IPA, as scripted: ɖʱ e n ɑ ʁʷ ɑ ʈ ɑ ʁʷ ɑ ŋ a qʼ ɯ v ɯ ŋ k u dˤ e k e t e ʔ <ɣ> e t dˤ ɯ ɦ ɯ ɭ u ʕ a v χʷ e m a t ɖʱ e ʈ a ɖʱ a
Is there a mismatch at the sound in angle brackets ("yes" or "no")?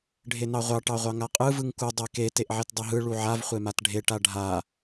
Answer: yes